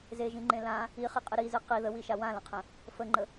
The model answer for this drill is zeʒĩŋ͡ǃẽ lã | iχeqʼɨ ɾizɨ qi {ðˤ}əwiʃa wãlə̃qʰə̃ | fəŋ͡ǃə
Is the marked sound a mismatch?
yes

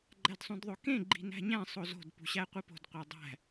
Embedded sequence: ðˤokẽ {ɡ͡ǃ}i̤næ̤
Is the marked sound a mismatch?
no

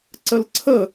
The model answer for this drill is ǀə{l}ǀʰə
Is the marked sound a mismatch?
no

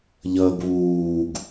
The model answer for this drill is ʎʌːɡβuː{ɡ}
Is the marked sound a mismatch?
no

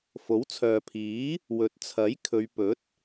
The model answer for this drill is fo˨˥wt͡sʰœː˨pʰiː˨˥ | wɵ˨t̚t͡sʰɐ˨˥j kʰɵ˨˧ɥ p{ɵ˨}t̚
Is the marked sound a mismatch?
yes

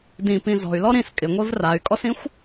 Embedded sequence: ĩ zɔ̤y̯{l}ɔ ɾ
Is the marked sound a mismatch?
no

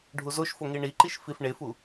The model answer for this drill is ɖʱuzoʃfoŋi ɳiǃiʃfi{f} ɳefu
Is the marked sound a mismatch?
no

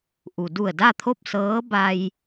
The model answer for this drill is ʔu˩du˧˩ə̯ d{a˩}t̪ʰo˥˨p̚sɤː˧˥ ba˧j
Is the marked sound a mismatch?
yes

